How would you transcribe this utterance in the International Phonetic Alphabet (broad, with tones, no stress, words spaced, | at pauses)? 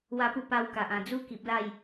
wa˦pu˥˧ pa˧wka˨ʔ ã˨˩d͡zu˦ki˨p̚ la˥˧j